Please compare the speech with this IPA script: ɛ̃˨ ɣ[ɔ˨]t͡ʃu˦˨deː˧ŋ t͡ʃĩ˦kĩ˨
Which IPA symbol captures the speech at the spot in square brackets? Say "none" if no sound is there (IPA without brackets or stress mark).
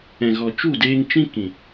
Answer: ɔ˨